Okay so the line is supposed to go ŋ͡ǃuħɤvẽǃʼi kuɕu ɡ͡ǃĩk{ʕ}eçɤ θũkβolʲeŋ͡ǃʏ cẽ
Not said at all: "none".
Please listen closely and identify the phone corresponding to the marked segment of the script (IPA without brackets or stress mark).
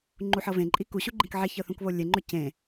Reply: ʕ